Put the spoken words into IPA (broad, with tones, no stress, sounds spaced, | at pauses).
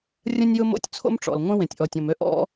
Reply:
rʲ ə̃˥ nʲ j ʊ˥ m o̰˥ tʲ t͡sʰ o̰˥ m ʈ͡ʂ ɔ̰˩ l ŋʷ ẽ˥ w ẽ˩ tʲ ʔ ɔ˩ tʲ ɔ̃˩ m ø˥ ʔ ɔ̰˥